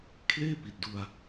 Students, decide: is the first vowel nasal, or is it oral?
oral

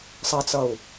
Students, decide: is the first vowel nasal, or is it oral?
oral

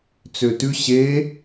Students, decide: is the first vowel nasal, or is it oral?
oral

